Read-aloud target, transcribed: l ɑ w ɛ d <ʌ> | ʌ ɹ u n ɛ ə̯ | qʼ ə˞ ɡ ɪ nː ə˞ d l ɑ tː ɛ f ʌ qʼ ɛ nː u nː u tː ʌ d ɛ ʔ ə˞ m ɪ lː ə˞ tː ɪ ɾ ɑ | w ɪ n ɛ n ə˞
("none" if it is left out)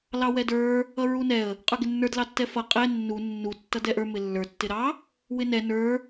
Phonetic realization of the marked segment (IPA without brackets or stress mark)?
ə˞